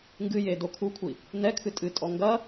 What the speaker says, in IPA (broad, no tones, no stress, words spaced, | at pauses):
ŋɡɨje dokʰukʷʰi | nɛkʰɨ tʼɨtʼɔ ŋɡɐ